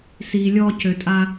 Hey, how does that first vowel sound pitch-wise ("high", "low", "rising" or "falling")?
low